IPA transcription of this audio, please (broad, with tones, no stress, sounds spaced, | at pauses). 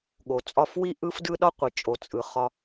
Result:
ɠ o˨ t͡sʼ ɒ˦˨ f w i˦ ʔ ɯ˦ f d ɯ˦ ɗ ɒ˦ qʷ i˨ t͡ʃʼ o˨ t͡sʼ ɯ˨ χ ɒ˧